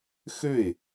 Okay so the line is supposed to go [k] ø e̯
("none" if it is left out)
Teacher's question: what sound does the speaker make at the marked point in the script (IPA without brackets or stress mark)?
x